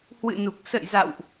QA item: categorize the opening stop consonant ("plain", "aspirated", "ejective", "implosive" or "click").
plain